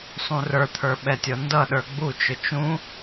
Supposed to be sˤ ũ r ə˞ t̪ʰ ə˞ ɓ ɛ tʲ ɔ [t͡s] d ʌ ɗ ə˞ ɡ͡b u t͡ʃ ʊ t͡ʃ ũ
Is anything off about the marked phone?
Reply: yes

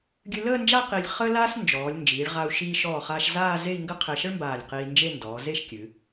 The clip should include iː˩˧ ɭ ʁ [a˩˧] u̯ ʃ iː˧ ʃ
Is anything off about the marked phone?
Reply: yes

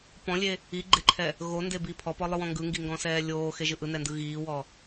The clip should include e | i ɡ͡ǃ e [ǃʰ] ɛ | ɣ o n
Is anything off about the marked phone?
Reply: no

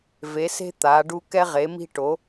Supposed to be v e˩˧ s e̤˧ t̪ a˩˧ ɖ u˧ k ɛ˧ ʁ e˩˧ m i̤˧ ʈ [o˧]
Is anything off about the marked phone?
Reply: yes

